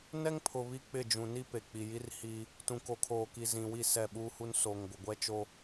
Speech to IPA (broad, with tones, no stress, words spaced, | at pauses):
nɛ˦ŋpʰʊ˨ βi˦k͡pɪ˦˨ d͡ʒũ˨ni˦ pe˨k͡pi˨ji˦r hi˦ | tũ˨ko˨ kʰoː˨ki˨zĩ˨wi˦˨ sɛ˦˨ɓuː˦hu˦n so˨ŋɡʷɪ˨ɡʷɛ˦t͡ʃo˦